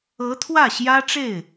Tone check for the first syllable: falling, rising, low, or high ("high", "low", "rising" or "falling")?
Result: rising